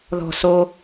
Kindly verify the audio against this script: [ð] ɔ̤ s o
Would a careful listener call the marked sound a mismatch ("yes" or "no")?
no